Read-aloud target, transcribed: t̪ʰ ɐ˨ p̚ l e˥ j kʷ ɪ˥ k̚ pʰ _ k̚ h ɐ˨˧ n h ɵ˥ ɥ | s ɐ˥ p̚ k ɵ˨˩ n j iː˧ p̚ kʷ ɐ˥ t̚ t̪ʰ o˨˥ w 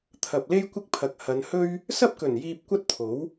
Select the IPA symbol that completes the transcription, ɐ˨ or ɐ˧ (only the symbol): ɐ˨